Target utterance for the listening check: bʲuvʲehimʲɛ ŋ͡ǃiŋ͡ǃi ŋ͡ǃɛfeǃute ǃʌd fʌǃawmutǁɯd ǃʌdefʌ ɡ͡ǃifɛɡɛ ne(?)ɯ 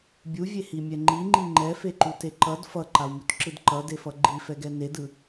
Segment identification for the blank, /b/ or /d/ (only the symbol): d